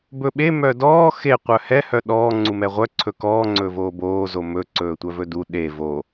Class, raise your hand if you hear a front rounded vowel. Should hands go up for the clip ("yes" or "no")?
yes